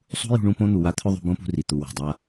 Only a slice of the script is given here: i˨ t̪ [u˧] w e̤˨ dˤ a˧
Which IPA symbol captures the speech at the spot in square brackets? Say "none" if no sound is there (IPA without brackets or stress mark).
u˨